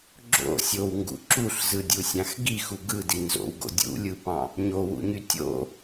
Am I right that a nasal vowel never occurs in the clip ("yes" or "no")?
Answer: no